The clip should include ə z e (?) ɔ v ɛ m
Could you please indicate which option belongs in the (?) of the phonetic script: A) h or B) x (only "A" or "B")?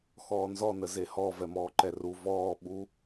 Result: A